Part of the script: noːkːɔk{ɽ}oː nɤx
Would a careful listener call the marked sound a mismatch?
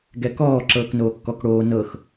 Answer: no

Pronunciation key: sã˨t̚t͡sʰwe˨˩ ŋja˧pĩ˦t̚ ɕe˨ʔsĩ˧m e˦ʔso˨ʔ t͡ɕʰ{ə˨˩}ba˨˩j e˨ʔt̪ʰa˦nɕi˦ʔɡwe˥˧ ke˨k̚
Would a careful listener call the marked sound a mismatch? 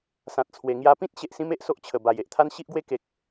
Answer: no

